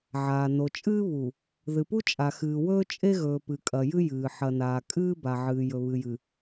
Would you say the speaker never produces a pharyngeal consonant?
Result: no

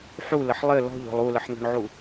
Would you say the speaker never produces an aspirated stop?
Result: yes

